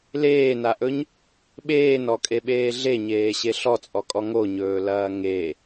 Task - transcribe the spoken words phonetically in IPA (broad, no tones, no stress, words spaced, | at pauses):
leːnaʔɵɲ | ɓeːnɔkʼeɓeː ɮeɲeːɕe ɬɔt͡sʼɔkʼɔ ŋoɲɵːlɐː ŋe